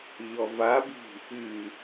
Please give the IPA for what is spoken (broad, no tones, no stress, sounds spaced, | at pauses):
ʎ ɔ v a b i̤ | ɨ